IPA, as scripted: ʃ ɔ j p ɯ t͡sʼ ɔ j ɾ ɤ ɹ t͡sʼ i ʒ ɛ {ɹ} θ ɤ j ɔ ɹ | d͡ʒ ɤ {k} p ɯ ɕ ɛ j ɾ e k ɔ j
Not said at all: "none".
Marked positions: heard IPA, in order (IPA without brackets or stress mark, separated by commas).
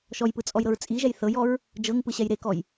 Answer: j, ŋ